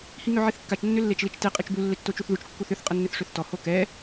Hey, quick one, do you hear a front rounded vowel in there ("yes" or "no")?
yes